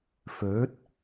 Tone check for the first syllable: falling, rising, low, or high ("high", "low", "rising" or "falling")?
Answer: rising